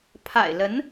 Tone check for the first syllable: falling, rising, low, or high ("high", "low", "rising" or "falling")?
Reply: low